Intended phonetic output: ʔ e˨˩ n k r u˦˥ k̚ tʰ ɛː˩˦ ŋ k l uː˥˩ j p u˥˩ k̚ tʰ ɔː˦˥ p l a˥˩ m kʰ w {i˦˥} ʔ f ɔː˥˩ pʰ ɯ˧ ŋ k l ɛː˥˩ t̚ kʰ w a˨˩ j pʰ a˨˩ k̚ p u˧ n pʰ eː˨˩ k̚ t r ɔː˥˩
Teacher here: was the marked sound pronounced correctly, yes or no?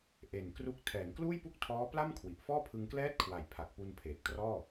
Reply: no